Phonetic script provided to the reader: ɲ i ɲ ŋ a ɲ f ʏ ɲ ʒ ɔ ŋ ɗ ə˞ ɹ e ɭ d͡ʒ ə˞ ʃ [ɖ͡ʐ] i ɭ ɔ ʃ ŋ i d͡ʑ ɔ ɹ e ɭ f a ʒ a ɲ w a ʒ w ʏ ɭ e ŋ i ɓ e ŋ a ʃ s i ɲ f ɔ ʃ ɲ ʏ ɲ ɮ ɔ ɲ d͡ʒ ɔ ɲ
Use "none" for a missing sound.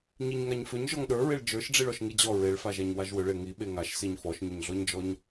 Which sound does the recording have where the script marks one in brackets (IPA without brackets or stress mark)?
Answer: ɖ͡ʐ